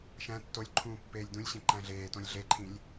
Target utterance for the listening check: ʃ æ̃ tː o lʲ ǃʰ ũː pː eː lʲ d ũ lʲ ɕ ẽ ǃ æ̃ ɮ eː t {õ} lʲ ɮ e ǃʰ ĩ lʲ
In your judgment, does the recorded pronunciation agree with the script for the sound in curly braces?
yes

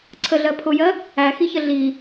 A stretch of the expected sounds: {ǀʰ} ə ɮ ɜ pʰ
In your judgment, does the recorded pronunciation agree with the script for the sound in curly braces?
yes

